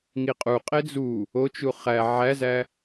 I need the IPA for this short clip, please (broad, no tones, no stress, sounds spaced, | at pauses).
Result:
ŋ i qʼ u qʼ e d͡z u | o t͡ʃ u χ æ ʕ æ z æ